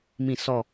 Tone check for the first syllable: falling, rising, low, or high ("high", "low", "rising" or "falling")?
falling